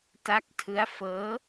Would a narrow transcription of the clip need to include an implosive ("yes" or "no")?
no